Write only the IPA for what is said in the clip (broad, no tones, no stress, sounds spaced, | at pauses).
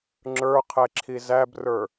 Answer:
ŋ͡ǁ ə˞ qʰ ɛ ǁʰ i z æ b r ə˞